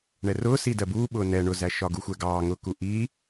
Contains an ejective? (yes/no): no